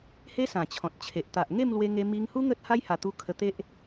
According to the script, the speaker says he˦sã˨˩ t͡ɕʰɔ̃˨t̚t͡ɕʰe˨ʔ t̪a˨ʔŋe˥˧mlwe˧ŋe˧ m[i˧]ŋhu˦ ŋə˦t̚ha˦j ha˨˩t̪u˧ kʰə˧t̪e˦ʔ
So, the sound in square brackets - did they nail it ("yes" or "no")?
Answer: yes